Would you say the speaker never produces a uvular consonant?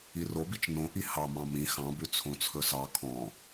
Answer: yes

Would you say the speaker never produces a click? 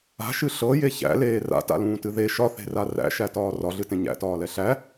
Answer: yes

